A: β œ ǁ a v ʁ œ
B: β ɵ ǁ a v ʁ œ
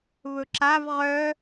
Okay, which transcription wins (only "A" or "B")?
B